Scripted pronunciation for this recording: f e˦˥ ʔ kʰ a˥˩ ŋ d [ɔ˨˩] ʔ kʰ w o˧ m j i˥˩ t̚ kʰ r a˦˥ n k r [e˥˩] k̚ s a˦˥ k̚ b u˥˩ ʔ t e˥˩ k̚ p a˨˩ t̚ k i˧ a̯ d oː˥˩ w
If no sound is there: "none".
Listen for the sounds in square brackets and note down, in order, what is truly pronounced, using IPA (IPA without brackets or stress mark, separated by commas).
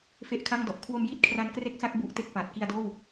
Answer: ɔ˨˩, e˥˩